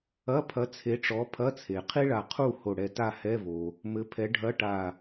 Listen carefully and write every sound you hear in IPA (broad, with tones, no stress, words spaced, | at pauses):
ɐ˧˥˧pʰɐ˨˥ t͡sʰe˨˥ʈ͡ʂɔ˨˥pʰɐ˧˥˧t͡sʰe˩ qʰi˥ɭa˧˩ qʰu˥˨ ho˧˩ɽɛ˧˩ta˥˨ hɛ˧˥˧vo˩ | mɘ˨˥pʰɛ˨˥ ɖʱɐ˧˥˧ʈa˧˩